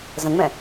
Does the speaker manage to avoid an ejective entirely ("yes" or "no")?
yes